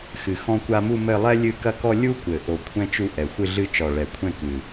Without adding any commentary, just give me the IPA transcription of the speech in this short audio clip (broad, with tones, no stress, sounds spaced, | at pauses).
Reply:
x ɨ˨˩ x ɔ̃˦ kʷ a˦ m u˦˨ m ɘ˦˨ lˠ ɛ˦ lʲ ɨ˦˨ k ɐ˦ k ɔ˦ lʲ u˦ kʷ ɘ˨˩ ʔ o˨˩ kʷʰ ɛ̃˦ t͡ʃ u˦ ʔ ɛ˨˩ xʷ ɨ˦˨ ɮ ɨ˦˨ t͡ʃ ɔ˨˩ ɭ ɛ˨˩ kʷʰ ɛ̃˦˨ k ɨ˨˩